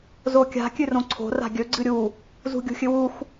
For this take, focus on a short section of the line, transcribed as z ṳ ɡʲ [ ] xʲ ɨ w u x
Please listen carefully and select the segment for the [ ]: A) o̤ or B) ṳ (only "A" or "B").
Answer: B